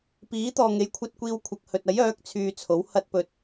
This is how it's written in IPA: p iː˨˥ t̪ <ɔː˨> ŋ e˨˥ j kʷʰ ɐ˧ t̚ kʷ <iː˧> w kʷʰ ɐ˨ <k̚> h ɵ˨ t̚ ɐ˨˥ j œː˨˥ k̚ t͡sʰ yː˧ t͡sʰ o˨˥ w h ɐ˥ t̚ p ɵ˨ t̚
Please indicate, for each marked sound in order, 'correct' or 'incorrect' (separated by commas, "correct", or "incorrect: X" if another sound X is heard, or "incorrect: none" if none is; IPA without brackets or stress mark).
correct, correct, correct